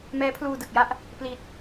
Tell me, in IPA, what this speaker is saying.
m ɛː˦˥ pʰ l uː˧ d ɯ˨˩ k̚ j a˥˩ ʔ | p l i˨˩ t̚

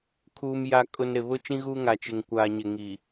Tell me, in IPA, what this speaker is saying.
kʰ uː˨ m j a˨ kʼ ʊ˨ n ɾ ɪ˨ β ʊ˦ t͡ʃ ĩ˦ ɣ uː˦ ŋ a˨ t͡ʃ ɪ˨ ŋ kʷ aː˨ ɲ ɪ˨ ŋ i˨

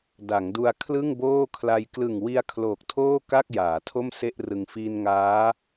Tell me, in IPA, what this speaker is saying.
d a˩˦ ŋ d u˧ a̯ kʰ l ɯ˥˩ ŋ b oː˥˩ kʰ l a˧ j k l ɯ˨˩ ŋ w i˧ a̯ kʰ l oː˨˩ k̚ tʰ oː˥˩ k a˥˩ k̚ j aː˩˦ tʰ o˥˩ m s e˥˩ ʔ r ɯ˧ ŋ f iː˧ n ŋ aː˦˥

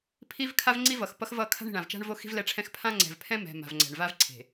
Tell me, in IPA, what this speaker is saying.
pʰ i˦ v kʰ a˦ v ŋ͡ǀ i˦ v ʌ˨ x p ʌ˦ x v ʌ˦˨ kʰ a̤˦ ɳ i̤˨ ɳ ã˨ v t͡ʃ a̤˦ ɳ v o˦ x i̤˦ v l ɛ˦˨ ʈ͡ʂʰ ɛ̃˦ x pʰ ã˦ ŋ͡ǀ ɛ̤˨ v pʰ ɛ̃˦ m ɛ̤˨ m a̤˨ v ŋ͡ǀ ɛ̤˨ ɳ v a˦ v ǀʰ e̤˨

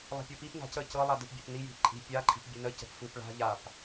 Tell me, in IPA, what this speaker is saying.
lˠ a̤ pʲ ɤ p i p n a̤ c ə c ɤ lˠ a d ɯ p bʲ a̤ p n i j i̤ p ǃʼ i̤ pʲ a ǃʼ i̤ p bʲ ɯ n ə c ə̤ p f ɯ p ɭ a̤ ʎ a p

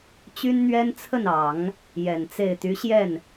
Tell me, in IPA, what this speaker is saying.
t͡ɕ y˥ n n̪ ɥ ɛ˥ n t͡sʰ ə˥˩ n ɑ˨˩˦ ŋ | j ɛ˨˩ n t͡s e˥˩ ɪ̯ t̪ y˧˥ ɕ j ɛ˥˩ n

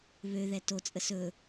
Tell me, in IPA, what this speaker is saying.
β ø ð ɛ t o t͡sʼ ə s ɵ

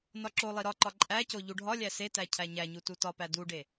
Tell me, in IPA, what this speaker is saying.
n ɒ ǁ o lˠ i ɾ ɒ ǃ ɒ ǃʼ æ c o ʎ u ɖʱ ɒ lʲ æ s e t æ cʰ æ ɲ æ ɲ u t u t ɒ p æ d u ɖ e

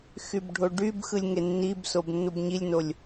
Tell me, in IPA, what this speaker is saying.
x y b ɖʱ o ɖ y b x ɯ lʲ ŋ e nː i b s o b nː u b ɲ i lʲ n o lʲ

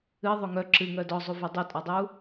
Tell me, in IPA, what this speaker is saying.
ɨ ðˤ o ŋ œ ǁ ɨ ŋ œ d ɔ zˤ u v œ dˤ o tʼ ɔ dˤ u

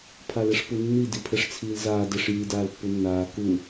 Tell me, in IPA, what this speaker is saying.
pʰ a l ɛ ʂ p u nː i d i pʰ ɛ ʂ t͡sʰ iː l z aː d ɛ ʂ j i d aː l pː u nː aː k u

